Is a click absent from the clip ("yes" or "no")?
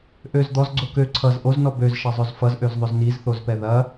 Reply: no